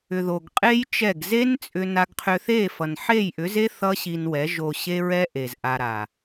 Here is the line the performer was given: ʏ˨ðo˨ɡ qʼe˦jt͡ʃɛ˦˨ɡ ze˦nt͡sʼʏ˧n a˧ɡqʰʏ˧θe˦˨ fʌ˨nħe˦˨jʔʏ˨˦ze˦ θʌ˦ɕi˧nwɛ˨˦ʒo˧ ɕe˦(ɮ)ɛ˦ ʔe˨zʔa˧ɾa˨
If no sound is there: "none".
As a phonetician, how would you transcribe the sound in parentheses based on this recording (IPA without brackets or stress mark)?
ɹ